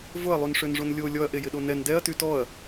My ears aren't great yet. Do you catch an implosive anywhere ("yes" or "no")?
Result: yes